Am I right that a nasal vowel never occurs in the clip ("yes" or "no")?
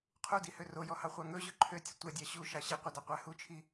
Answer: yes